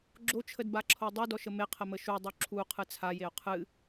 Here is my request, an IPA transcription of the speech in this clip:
ɡ͡ǁ o t͡ʃʰ ə d b a ǁʰ o dˤ u d ɔ ʃ ə m e qʰ ə m ə ʃ u dˤ u ǁʰ u qʰ ɨ t͡sʰ a j e o̯ qʰ ɨ

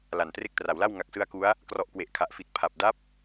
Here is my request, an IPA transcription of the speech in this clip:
l a˨˩ n t r e˦˥ k̚ t r a˩˦ w l a˥˩ w ŋ a˨˩ k̚ s ɯ˧ a̯ k u˦˥ a̯ | k r ɔ˨˩ ʔ k w e˨˩ ʔ kʰ a˨˩ ʔ f i˨˩ t̚ pʰ a˨˩ p̚ d a˦˥ p̚

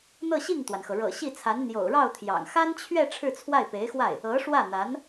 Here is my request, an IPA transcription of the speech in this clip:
n̪ ɤ˥˧ ɕ i˥˩ ŋ t̪ w a˩ n x ɤ˩ ɻ ɤ̰˨˩ ɕ i˥˩ t͡sʰ a˧˥ n n̪ j o̰˨˩ ʊ̯ ɻ ɑ˥˩ ʊ̯ t̪ʰ j ɑ̰˨˩ ŋ x a˥ n t͡ɕʰ ɥ ɛ˥˧ ʈ͡ʂʰ ɻ̩˥˧ t͡sʰ w a˥˩ ɪ̯ p e˧˥ ɪ̯ x w a˥˩ ɪ̯ | ɤ˧˥ ʂ w ä˥˩ n̪ a˧˥ n

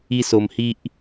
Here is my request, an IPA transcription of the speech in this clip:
i˦ s o˧ m h i˦ ʔ

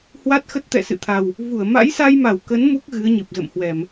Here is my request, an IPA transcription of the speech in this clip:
h w a˦˥ t̚ x ə˦˥ t̚ t̪ ɛ̰˧˨ s ɨ̰˧˨ t̪ʰ a˨˩ w | v u˧˩ ə̯ m a̰˧˥ j s a˧ j m a˧˩ w k ə˨˦ n m u˦˥ k̚ ɣ ɨ˨˦ ə̯ ɲ ɨ˨˩ p̚ z ə̰˧˨ m h w ɛ˧˩˨ m

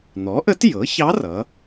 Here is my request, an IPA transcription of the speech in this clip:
n̪ ɔ˩˥ ʔ ə˧˥ t j ɤ˩˥ ç ɑ˧˥ r ʌ˩˥

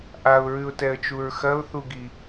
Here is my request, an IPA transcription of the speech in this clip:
ʔ a ʊ̯ ɹ ʉ ʊ̯ t ɛ ə̯ t͡ʃ u ɹ x ɐ ʊ̯ θ u ɡ i

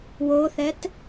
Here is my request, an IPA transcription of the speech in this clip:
w o θ ɛ t

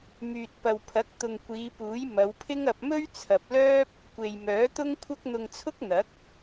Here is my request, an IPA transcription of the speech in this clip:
m yː˨ t̚ p ɐ˨ w pʰ ɐ˨˥ k̚ t̪ ʊ˨ ŋ kʷ iː˨˧ p uː˨˥ j m ɐ˨˧ w pʰ ɪ˥ ŋ ɐ˧ p̚ m ɵ˥ ɥ t͡sʰ ɐ˨ p̚ l œː˥ p̚ | kʷ e˨ j m œː˨˥ t̪ ʊ˥ ŋ kʷʰ ɐ˥ k̚ n̪ ʊ˧ ŋ t͡sʰ ʊ˥ k̚ n̪ ɐ˨˥ k̚

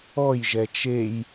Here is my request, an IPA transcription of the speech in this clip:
ɔ j ʒ ɛ t͡ʃ e j

